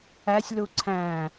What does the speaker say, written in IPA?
æsʲlu ǀʰæ̃

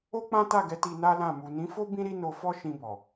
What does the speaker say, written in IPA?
o˦k͡pã˦ta˦˨ɡɛ˨˦ ti˧na˦lã˦˨ mu˨nĩ˨˦fo˦ bĩ˦ɾi˦no˧fɔ˦ ʃĩ˧bɔ˨

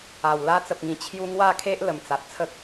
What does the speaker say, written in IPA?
a˨˩wla˦ t͡sə˨p̚ŋĩ˨˩ t͡ɕʰju˦ ŋwa˥˧kʰe˦ʔlə˨˩m t͡sa˨t̚t͡sʰə˦k̚

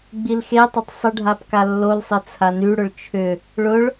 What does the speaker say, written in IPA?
ɡ͡bilxetˤʊtˤ sˤəɖʱap kalːolsˤe t͡sʰanyɽʊɭ t͡ʃʰʏ | ɭʊɭ

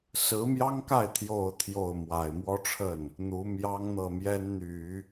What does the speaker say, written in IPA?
sɹ̩˧˥mjɑ˥ŋka˥˩ɪ̯ t̪ʰjo˨˩ʊ̯ t̪ʰjo˥˩ʊ̯ mwa˨˩ɪ̯mwɔ˥ʈ͡ʂʰə˥˩n | n̪u˧˥mjɑ˥ŋ n̪ɤ˥˩mjɛ˥nn̪y˨˩˦

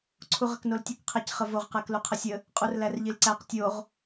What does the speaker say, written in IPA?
ǀʰuʁəknoltʲuk qʰæcχəvoʁ qækluqʰəsʲə | qʼurlærʎilǀæq tʲoʁ

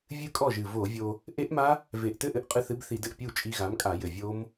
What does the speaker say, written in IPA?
vʲɨ˧ kʼɔ˥˩ʒɨ˨˩ vo˧˩˧vʲo˧ | ʔe˦˥ʔma˦˥ | ve˨˩ʔtɘ˥˩ʔɘ˧ʔ qʼɨ˧θɨ˨˥bθi˧˩˧d ɘ˨˩ʔpʲu˥˩t͡ʃʼi˧ɣa˨˥m kʼa˧˩˧jɘ˨˩vʲo˦˥m

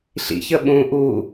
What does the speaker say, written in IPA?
ɬḭç əɓũ ʔu

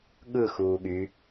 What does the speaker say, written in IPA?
ɠɯ xuːɠy

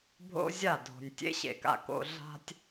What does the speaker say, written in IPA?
bʱo̰˦zʲa˦˨ dʱo̤˨nʲ tʲḛ˦ɕḛ˨ka̰˨ ko̰˨ ɮa̤˨tʲ

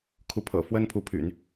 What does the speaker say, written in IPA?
kʰu˧˥pʰɤ̰˨˩ fwə˥npʰu˧˥pʰy̰˨˩˦n

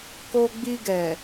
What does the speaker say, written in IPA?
ko˧ɡ͡bi˧ɡɛ˨

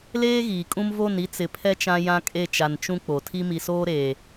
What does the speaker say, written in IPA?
leː˦ɣiː˨kʼũ˦m vo˦˨ni˦ t͡sɪ˨pʰɛ˦ t͡ʃã˦jã˦kʼe˦˨t͡ʃa˨n t͡ʃũ˦ k͡po˨tʰi˦ mi˨soː˦ɾeː˨

